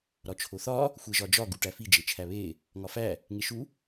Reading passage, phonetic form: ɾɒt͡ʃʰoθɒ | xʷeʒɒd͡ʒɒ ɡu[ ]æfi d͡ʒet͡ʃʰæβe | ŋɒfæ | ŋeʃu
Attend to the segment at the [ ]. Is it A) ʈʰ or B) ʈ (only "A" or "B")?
B